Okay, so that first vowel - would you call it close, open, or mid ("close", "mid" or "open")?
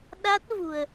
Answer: open